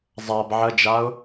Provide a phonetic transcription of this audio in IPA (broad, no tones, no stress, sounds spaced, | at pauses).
zˤ a b ʕ ə d͡ʒ a ʊ̯